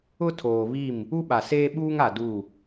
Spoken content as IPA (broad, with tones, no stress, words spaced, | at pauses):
ʊ˦ tʰoː˨βi˦˨m | u˦ɓa˨seː˦ ɓuː˦ŋa˨ du˦˨